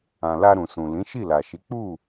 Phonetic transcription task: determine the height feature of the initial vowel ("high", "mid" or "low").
low